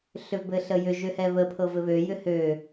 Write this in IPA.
ɬ ʏ v b ɘ ɬ ə j ʏ ʒ ø h ɛ β ə pʰ ɤ v ɘ β ø j ʏ h ø

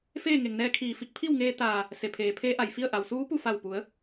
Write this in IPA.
f eː˥˨ ŋ e˩ ŋ n ɛː˧ kʰ iː˧˩ f i˧ k̚ pʰ i˥˨ w ŋ eː˧ t̪ aː˧˩ | s e˩˧ pʰ eː˩ pʰ eː˧˥ ʔ a˧˩ j f i˥˨ ə̯ ʔ a˩ w s uː˧˥ p u˥˨ f a˧˩ w p u˩˧ ə̯

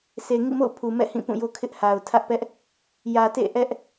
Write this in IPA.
s e˨ ŋ ḭ˦˨ m o̰˦˨ ʊ̯ pʰ u˨ m ɛ̰˦˨ h ĩ˦˨ p ũ˦˨ j o˦ kʰ ɪ˦ ʔ h a˨ ʊ̯ tʰ ä˦ ʔ p ɛ˦ ʔ | j ä˨ t ḛ˦˨ ʔ ɛ˦ ʔ

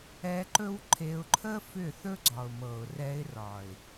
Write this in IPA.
ɛ˧ ǃ ɵ˦ w ǃʰ e˧ ʊ̯ ǃʰ ə˦ f ʏ˦˨ θ ɵ˦ ɡ͡ǀ ɒ˨ ʊ̯ m ɤ˨ ʊ̯ r ɛ˧ ɪ̯ r ɒ˨ ɪ̯

